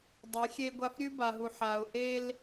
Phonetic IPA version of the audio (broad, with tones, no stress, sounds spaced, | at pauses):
dˤ e˨˦ xʲ e˦ ɡʷ a˦ f ɾʲ ʉ˦ b a˨ ɦ u˨ ħ a˨ ʊ̯ ʔ e˦ l